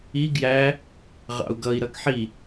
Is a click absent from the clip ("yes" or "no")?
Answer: yes